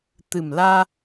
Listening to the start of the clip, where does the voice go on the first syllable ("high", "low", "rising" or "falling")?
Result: low